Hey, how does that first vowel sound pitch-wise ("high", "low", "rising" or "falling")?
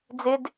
high